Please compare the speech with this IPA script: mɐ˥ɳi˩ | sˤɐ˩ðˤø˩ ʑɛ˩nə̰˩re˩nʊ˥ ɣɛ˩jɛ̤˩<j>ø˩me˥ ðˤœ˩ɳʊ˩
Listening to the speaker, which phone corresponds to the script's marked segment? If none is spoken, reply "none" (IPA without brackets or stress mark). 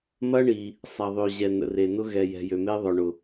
j